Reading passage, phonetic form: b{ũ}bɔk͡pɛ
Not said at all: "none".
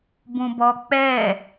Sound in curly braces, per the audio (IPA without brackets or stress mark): ũ